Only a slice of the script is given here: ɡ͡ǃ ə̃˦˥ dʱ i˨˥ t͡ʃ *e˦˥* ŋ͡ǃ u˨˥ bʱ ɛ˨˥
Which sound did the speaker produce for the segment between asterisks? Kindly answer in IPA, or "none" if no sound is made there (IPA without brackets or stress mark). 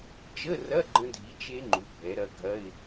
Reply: e˦˥